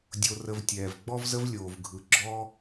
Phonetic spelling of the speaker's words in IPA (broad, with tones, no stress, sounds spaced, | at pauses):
dʲ o˧ r ə˧ v tʲ ɛː˨ v ɡ͡b ɔ˦ v z ə˦ v lʲ oː˨ v ɡʱ ɯ˨ ɡ͡ǁ ɔː˦